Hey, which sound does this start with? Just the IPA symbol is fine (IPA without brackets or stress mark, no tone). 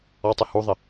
ɔ